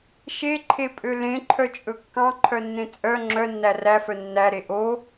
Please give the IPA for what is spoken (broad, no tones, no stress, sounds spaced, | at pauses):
ʃ e ǃʰ e pʼ ø l ẽ ǃʰ œ t͡ʃʼ ɵ kː ɑ̃ ǃʰ œ nː ẽ t͡sʼ œ ŋ͡ǁ œ nː æ r æ f œ nː æ ɾ e ʔ o